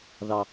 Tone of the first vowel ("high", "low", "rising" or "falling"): low